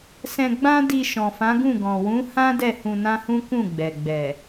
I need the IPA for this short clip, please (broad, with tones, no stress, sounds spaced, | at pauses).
s ɛ̃˧ ɡ͡b ã˦ d i˧ ʃ ɔ̃˨ f ã˨˦ ɡ ũ˦˨ ɡ ɔ̃˨ w ũ˨˦ h ã˦ d ɛ˦˨ h ũ˧ n ã˦ h ũ˦ k ũ˦˨ ɡ͡b ɛ˨ ɡ͡b ɛ˨